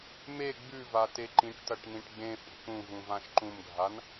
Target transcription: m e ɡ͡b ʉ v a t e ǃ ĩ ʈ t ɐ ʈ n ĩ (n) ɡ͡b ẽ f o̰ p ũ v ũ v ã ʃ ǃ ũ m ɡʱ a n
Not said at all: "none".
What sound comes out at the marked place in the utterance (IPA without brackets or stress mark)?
ʈ